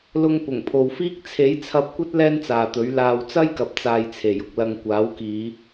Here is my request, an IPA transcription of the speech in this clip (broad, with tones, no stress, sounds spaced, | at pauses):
l ʊ˧ ŋ p ʊ˨˩ ŋ pʰ o˨ w f iː˥ k̚ t͡sʰ e˨˥ j t͡sʰ ɐ˧ p̚ kʷ ɐ˥ t̚ l ɛː˥ n t͡s aː˨ t̪ ɵ˨˥ ɥ l aː˧ w t͡s ɐ˥ j k ɐ˨ p̚ t͡s aː˨ j t͡sʰ e˨˩ j ʊ˨ k̚ l ɐ˧ ŋ kʷ aː˨˥ w k iː˨˧